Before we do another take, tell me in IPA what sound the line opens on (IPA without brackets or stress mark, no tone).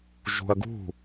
ʒ